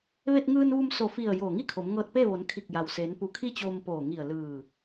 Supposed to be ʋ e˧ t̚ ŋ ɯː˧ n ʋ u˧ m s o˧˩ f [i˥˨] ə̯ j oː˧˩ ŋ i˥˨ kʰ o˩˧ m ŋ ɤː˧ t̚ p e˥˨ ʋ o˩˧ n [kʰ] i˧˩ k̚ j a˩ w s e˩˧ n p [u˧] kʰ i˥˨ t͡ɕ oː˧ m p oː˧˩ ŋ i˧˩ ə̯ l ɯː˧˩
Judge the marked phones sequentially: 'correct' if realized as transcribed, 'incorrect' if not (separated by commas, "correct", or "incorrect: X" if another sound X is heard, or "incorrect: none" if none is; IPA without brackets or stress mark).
incorrect: i˧˩, correct, correct